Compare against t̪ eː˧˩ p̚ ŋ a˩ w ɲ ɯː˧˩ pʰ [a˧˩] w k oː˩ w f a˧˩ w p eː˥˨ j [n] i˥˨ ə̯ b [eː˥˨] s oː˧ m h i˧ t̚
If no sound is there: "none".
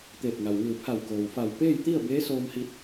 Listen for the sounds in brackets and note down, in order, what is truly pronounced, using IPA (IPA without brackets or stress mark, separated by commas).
a˧˩, t̪, eː˧˥